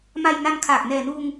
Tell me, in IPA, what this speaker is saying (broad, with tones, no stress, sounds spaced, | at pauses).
m a˧ j n a˧ n kʰ aː˨˩ k̚ n ɛː˨˩ n uː˧ ŋ